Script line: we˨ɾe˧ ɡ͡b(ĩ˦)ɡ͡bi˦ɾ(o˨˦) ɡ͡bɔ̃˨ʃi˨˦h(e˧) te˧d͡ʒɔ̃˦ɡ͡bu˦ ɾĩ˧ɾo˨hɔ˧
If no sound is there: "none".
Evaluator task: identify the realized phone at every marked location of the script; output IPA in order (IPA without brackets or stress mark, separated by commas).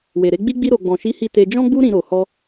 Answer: i˦, o˧, i˧